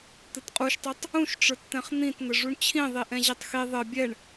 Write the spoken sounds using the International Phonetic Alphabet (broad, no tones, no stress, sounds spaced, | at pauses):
t̪ ɘ t qʼ u ʃ tˤ u tˤ | ũ ʃ ʈ͡ʂ ə˞ t t̪ ɛ̃ χ n̪ ĩ t n̪ ɘ ʐ u ɳ t͡ɕʰ ĩ ðˤ i ʔ ɛ̃ ʑ ɛ tˤ x i ðˤ ɘ bʲ ɛ ɳ